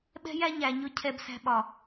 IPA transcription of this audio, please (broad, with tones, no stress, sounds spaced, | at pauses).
ɓ ɛ̤˦ j æ˦ ɲ æ˧ ɲ ʊ˦ cʰ ɛ˧ b s æ̤˧ ɓ ɒ˨